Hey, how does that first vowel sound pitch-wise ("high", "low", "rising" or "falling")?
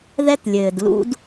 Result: high